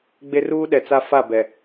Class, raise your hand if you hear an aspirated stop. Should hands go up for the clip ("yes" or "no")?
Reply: no